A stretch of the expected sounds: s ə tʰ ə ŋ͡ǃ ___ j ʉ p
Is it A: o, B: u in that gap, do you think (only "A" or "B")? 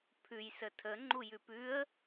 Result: B